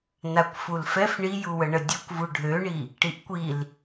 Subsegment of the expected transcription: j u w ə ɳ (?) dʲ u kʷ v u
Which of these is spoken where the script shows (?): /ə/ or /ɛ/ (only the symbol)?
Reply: ə